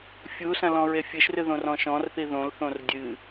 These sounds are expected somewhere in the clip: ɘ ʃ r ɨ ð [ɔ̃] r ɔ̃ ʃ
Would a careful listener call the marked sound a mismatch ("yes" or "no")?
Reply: yes